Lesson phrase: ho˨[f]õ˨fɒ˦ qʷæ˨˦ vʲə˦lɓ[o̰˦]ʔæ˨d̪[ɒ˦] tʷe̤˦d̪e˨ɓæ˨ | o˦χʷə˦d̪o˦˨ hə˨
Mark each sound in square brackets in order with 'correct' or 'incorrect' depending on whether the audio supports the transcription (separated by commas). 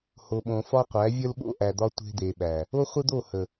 incorrect, correct, correct